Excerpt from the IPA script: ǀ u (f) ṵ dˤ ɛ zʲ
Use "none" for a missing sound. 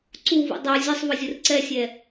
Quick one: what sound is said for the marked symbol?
v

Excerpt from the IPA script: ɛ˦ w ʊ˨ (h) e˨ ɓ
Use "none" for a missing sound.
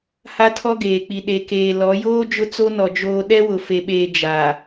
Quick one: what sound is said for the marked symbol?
f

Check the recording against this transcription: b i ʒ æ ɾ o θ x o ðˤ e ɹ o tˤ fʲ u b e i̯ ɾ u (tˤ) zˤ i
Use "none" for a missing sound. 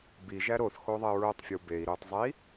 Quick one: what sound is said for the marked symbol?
tˤ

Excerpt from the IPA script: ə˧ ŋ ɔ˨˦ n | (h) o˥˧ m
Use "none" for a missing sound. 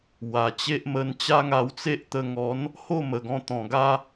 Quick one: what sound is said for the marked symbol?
h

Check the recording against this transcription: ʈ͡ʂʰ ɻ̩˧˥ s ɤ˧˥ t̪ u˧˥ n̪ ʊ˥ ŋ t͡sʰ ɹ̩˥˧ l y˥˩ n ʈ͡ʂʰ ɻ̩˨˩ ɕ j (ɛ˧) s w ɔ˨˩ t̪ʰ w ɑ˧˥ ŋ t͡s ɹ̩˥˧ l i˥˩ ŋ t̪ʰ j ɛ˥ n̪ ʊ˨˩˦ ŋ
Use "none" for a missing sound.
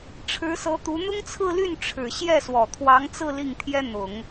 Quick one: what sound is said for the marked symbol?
ɛ˥˩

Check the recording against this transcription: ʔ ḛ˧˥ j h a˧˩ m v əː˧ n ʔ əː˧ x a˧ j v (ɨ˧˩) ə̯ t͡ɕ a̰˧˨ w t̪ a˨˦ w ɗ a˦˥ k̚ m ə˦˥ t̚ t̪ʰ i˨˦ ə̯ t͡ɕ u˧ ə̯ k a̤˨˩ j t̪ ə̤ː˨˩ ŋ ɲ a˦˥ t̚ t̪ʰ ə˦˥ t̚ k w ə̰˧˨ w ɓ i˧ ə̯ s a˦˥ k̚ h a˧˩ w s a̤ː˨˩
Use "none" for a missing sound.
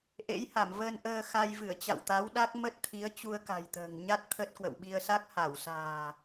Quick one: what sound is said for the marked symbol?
ɨ˧˩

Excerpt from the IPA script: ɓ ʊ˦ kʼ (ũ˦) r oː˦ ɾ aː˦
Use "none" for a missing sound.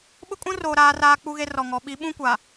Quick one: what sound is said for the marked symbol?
ũ˦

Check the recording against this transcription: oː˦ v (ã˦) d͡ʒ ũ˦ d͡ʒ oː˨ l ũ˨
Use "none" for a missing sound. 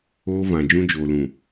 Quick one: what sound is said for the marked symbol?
ã˨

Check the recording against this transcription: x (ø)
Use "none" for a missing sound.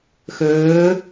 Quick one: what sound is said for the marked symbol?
øː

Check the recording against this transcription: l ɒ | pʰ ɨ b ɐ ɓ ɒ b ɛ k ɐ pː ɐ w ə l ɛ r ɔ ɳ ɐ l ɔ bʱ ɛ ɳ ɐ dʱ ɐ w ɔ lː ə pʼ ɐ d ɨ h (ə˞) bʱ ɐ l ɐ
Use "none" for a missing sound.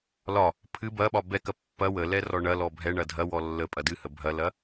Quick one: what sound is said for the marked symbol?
ə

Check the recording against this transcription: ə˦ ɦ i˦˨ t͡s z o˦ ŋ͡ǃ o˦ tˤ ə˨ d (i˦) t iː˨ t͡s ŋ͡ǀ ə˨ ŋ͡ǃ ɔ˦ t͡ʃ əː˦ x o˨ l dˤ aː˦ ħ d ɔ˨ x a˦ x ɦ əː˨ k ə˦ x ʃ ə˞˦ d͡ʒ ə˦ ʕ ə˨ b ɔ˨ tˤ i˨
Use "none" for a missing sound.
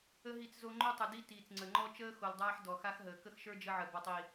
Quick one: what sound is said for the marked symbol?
i˦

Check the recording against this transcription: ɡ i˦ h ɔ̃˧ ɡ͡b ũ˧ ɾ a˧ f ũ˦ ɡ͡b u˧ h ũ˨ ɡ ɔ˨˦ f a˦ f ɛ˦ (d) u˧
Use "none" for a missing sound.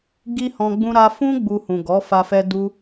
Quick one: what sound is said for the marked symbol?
d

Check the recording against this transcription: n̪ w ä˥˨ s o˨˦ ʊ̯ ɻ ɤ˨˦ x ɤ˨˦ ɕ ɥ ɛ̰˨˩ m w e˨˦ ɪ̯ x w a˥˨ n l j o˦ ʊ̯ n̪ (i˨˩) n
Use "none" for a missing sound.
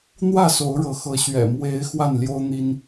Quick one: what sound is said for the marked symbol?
i˦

